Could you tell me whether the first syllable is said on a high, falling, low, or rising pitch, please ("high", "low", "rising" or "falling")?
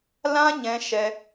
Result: high